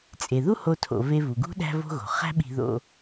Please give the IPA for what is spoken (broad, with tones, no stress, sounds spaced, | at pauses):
t͡sʼ e˩ ð u˥ h o˧ tʰ o̰˩ v e˧ v u˩ ɡ ṳ˥ ɗ æ̤˧ v o̤˧ ɣ o̤˩ χ æ̤˥ ɓ i̤˧ ð o̰˧